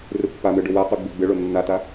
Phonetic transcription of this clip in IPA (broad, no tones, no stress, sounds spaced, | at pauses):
r ɨ pː a m ɨ ɖ ɵ w a q ʉ ɡ͡b i ɡ͡b ɨ ɭ o nː a t a